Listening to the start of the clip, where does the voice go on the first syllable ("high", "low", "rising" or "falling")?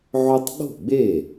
high